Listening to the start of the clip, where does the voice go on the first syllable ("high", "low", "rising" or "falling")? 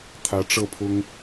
rising